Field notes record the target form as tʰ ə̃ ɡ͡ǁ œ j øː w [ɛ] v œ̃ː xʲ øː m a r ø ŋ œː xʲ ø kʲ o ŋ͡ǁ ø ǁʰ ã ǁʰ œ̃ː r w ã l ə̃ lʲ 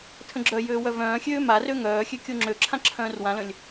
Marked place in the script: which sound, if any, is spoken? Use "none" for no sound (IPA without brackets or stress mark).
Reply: œ